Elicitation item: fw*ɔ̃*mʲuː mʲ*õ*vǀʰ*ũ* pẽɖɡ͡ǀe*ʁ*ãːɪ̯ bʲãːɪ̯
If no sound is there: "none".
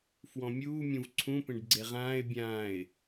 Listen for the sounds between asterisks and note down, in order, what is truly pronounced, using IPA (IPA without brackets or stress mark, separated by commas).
ɔ̃, ũ, ũ, ʁ